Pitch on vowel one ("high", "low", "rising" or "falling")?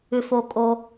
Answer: low